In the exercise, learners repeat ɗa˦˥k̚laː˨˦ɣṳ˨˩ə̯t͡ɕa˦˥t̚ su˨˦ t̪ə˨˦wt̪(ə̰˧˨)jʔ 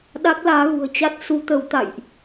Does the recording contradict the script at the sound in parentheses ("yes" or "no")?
yes